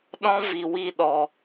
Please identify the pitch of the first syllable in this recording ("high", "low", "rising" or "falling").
high